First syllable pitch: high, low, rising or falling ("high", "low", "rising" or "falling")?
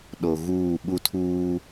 low